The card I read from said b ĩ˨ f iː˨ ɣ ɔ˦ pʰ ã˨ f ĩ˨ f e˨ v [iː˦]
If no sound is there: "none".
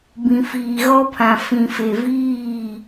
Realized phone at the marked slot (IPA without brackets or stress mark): iː˦˨